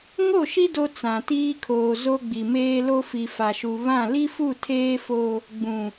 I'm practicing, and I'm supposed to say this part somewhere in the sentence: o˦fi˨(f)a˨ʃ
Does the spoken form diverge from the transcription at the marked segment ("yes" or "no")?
no